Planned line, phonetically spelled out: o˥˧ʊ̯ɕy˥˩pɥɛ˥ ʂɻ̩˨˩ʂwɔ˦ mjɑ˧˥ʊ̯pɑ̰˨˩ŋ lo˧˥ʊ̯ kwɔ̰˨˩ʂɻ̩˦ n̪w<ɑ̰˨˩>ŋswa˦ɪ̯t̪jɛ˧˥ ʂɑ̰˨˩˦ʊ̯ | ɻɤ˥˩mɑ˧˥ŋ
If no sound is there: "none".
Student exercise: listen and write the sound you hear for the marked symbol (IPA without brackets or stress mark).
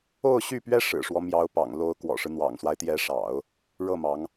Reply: ɑ̰˨˩